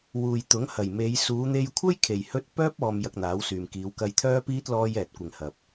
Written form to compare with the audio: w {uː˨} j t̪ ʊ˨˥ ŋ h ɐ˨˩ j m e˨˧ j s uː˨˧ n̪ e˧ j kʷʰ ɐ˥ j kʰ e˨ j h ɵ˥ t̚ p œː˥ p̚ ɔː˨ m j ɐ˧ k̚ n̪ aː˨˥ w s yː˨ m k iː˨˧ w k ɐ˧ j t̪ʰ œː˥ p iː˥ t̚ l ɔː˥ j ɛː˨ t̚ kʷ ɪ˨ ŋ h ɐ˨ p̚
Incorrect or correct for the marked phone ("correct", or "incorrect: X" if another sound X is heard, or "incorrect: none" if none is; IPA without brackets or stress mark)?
correct